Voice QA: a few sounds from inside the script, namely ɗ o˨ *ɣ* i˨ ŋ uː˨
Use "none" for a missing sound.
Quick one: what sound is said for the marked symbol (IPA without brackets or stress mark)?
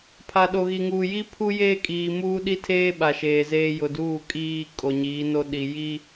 ɣ